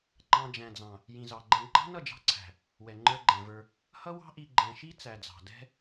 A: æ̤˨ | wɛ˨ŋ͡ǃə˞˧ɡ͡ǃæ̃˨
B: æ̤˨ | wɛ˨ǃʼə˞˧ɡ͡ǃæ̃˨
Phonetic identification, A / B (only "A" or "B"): A